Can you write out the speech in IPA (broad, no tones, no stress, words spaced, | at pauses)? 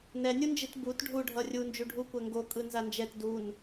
nɛnʲund͡ʒit but ɖʱuɖʱʌ rʲu nd͡ʒuɖʱukʷɛ ŋɡokʼɯ nzand͡ʒɛt dun